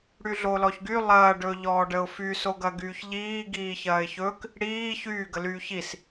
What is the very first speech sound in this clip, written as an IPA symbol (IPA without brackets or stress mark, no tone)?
ɽ